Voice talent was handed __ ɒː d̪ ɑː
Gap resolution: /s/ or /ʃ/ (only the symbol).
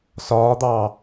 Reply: s